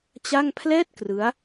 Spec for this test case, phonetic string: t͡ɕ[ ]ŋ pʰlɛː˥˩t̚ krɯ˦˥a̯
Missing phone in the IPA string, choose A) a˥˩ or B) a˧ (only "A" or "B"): A